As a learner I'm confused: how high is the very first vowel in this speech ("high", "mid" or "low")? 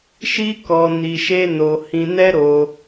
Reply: high